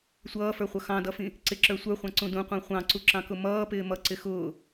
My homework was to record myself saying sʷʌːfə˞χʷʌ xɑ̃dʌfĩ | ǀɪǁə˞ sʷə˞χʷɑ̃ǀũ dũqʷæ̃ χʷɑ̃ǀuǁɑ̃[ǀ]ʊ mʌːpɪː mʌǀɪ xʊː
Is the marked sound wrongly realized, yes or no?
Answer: yes